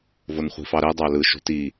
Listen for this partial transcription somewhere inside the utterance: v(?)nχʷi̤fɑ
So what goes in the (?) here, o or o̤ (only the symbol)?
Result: o